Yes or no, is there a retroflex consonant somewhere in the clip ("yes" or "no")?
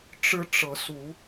yes